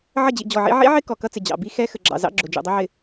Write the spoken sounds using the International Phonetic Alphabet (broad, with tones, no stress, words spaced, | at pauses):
ʕə˦˨d͡ʑḭ˨ d͡ʑɔ˨ʕḭ˦ ʕḭ˦ʕɪ˦ kɔ˨ kʌ˦t͡sɪ˨ d͡ʑɑ̰˨ bi˦ xɛ˦ xə˨ɡ͡ǁɑ̰˨zɑ̰˦ ɡ͡ǁʊ˨d͡ʒṵ˨dˤʌ˦ʕɪ˨